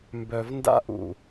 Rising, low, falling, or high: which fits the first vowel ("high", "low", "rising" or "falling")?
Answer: low